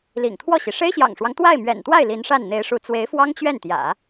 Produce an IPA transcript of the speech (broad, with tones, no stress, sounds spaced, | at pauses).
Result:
l ḭ˨˩ ŋ t̪ʰ w ɔ˥˩ ɕ i˩ ʂ e˥ ɪ̯ ɕ j ɑ̰˨˩ ŋ ʂ w ɑ˦ ŋ t̪ w a˥˩ ɪ̯ m ɥ ɛ̰˨˩ n t̪ w a˥˩ ɪ̯ l i˧˥ n ʂ a˥˩ n n̪ e˧˥ ɪ̯ ʂ u˧˥ t͡s w e˧˥ ɪ̯ f w ɑ˥ ŋ t͡ɕ ɥ ɛ˥˩ n t̪ j ä̰˨˩˦